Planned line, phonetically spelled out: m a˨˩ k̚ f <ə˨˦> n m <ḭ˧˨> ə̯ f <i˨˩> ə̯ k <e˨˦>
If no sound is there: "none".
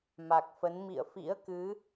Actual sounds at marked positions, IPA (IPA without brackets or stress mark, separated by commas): ə˨˦, ḭ˧˨, ḭ˧˥, ɨ˨˦